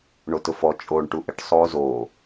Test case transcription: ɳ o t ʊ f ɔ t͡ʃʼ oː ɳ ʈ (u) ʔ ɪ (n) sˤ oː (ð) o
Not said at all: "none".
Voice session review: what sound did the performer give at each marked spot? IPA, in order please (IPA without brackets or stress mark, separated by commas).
u, ʈ, z